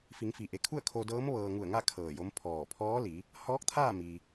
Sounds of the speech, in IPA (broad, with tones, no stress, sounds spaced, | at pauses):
f i˩˧ ŋ f i˩ ʔ e˩˧ kʰ u˥˨ ə̯ kʰ o˧ d ɤː˧˥ m ʋ ɤː˧ ŋ u˧˩ ə̯ ŋ a˥˨ kʰ ɤː˧˩ j o˧˥ m pʰ ɔː˧˩ pʰ ɔː˧˥ l i˩˧ | h ɔː˧˥ k̚ t̪ʰ aː˥˨ m i˩